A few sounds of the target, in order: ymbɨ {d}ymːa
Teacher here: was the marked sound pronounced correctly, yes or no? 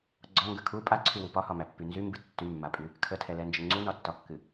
no